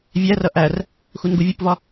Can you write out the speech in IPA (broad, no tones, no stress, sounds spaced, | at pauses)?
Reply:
vʲ æ r ʌ ʔ æ r | x u n ɡ u vʲ u p v ɒ